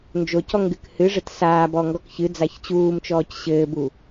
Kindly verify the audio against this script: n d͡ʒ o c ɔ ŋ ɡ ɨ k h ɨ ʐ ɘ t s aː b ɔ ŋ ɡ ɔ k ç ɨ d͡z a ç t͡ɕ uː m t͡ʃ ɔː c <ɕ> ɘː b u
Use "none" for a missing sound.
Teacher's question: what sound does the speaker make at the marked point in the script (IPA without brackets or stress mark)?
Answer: ɕ